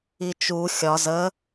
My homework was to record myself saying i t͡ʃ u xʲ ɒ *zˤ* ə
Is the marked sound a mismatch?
yes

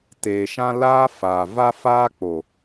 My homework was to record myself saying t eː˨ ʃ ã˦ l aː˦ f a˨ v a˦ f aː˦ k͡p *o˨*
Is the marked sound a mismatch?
no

